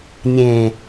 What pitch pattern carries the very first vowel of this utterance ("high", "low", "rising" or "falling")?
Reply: low